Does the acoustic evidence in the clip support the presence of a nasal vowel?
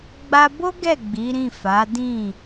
yes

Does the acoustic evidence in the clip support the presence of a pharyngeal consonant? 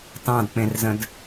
no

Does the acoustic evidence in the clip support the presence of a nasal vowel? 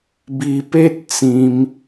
yes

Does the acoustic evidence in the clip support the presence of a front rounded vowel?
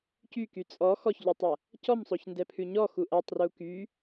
yes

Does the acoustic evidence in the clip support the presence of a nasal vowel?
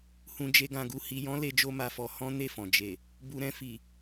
yes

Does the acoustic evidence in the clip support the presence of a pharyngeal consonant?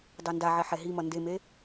yes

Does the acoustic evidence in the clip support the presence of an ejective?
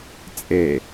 yes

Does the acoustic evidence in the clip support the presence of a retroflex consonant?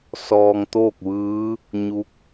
no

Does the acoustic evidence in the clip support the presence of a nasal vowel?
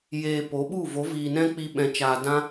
yes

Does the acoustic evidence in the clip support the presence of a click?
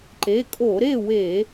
yes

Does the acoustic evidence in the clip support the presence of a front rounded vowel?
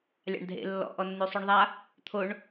yes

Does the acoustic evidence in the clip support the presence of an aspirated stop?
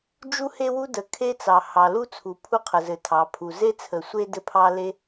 yes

